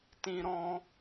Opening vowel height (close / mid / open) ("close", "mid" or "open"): close